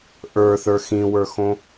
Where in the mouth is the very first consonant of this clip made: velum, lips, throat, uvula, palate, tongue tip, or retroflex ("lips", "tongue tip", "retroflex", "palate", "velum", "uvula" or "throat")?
throat